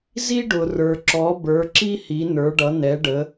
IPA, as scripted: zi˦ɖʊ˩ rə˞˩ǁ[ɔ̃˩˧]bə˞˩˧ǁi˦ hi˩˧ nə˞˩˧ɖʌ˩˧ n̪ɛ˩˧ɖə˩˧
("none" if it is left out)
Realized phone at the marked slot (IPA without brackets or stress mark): ɔ˩˧